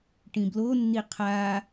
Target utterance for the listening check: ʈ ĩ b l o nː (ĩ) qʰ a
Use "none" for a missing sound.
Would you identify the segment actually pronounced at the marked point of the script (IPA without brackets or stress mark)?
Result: i